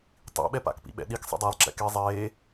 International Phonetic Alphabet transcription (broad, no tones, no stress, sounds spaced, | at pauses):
tˤ ḭ ɓ ɛ p a̰ k p ḭ ɓ ɛ̰ ɗ i k sˤ ḛ dˤ e lˠ ǁ ɛ̰ k e zˤ eː